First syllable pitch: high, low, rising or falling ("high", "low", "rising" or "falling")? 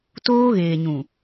high